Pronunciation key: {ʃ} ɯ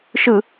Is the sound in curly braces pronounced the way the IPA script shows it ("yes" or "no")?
yes